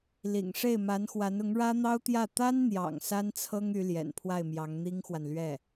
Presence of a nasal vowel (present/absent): absent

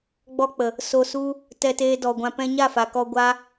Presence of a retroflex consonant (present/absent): absent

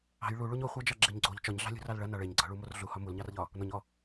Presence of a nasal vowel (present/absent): absent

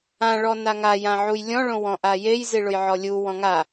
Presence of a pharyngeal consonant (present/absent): present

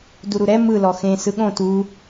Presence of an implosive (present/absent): present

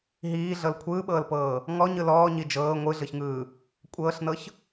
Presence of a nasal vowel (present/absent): absent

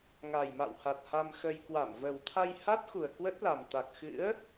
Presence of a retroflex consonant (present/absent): absent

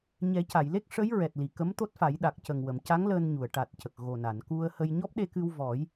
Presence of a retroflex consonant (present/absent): present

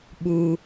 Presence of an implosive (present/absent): present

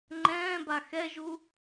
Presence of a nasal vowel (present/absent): present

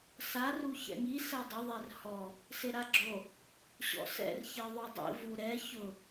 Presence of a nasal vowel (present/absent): absent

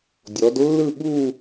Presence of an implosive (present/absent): present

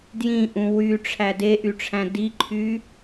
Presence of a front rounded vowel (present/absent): present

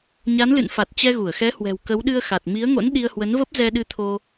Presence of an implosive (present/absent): present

